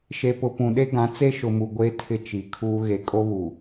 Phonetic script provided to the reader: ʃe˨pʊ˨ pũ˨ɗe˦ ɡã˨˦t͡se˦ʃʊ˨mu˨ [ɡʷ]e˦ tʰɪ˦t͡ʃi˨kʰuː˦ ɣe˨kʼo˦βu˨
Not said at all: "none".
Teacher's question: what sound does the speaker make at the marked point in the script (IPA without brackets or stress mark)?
ɡʷ